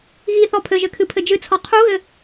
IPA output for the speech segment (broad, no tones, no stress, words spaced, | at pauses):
ɣiθɔ pʰɘʒɘkʰɨpʰɘ d͡ʒɨt͡sʰɔ qʰuɣɘ